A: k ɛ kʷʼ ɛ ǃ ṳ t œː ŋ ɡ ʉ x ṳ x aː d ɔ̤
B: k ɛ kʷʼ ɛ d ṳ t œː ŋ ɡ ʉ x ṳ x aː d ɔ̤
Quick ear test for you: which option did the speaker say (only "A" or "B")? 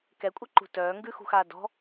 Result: A